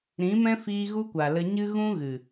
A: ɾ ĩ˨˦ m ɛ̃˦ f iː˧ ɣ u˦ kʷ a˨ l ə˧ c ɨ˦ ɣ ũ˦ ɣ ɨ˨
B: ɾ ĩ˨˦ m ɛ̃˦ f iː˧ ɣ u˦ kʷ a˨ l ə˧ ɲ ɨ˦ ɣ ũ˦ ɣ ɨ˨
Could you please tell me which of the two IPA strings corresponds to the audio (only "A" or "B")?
B